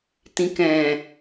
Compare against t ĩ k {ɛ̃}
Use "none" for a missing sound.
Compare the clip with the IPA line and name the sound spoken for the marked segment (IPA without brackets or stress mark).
ɛ̃